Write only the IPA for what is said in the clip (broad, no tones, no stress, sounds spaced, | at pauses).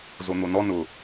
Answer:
z o n̪ o n ɔ n ʊ